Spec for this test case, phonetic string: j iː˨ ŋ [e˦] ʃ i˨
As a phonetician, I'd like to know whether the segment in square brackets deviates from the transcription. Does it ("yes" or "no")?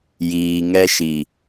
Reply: yes